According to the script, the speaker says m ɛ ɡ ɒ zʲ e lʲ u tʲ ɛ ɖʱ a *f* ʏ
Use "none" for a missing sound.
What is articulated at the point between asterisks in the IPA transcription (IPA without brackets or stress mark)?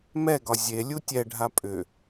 pʼ